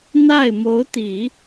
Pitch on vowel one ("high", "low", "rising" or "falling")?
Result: falling